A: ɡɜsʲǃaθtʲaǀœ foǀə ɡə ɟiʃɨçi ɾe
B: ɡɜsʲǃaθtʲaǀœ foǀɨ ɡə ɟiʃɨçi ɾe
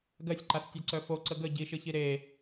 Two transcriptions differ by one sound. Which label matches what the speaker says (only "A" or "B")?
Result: A